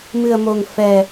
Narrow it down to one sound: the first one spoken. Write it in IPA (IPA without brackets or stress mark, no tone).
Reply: m